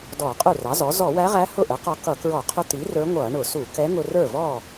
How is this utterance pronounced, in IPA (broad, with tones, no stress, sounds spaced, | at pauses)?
d ɔː˧˩˧ qʼ u˥˩ r ɑ˩˥ z ɔ˩˥ z ɔ˧˩˧ w æ˧˥ ʁ æ˧˥ h ʊ˥˩ ʔ ə˩˥ q ɔ˧ k ʌ˧˩˧ k ɹ ɔ˧˩˧ qʰ ʊ˧˥ t̪ i˩˥ r ə˞˧˥ ŋʷ ʌː˧˩˧ ɳ ʊ˧˩˧ s u˧˩˧ k ɛ˧˥ ŋ ʊ˧ r ə˞˥˩ v ɔː˥˩